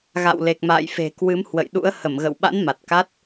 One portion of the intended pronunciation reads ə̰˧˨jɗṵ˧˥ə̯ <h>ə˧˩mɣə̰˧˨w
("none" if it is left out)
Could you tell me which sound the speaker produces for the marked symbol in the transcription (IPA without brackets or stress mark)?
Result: h